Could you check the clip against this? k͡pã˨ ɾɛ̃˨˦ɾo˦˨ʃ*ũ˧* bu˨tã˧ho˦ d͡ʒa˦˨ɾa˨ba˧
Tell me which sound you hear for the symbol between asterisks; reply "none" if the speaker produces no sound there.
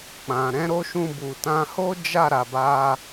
ũ˧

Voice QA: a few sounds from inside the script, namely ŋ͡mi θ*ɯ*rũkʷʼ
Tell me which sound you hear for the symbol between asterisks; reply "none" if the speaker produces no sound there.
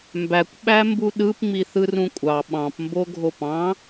ɯ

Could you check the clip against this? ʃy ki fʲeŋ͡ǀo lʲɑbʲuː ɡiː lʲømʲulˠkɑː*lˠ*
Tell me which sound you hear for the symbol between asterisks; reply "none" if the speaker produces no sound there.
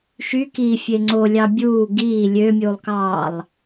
lˠ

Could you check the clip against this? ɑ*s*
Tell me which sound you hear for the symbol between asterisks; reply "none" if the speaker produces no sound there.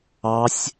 sʲ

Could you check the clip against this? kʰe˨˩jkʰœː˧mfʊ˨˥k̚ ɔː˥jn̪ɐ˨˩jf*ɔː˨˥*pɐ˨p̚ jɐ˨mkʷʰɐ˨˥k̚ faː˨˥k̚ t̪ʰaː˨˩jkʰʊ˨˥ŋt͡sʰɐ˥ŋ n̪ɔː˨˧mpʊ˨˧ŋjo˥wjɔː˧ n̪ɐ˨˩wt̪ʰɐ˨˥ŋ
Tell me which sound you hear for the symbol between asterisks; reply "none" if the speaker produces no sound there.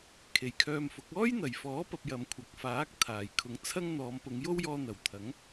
ɔː˨˥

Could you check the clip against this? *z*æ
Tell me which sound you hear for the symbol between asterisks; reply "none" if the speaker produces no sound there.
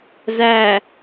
z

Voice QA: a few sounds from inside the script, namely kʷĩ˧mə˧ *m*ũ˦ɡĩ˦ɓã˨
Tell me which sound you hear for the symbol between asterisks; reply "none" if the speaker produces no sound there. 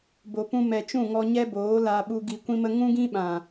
ŋ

